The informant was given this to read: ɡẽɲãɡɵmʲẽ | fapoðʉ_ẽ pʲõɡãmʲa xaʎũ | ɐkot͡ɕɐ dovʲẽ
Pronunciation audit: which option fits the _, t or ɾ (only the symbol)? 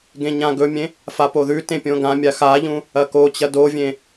t